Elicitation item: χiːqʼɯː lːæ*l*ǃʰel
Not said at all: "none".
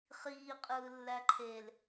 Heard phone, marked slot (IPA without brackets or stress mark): none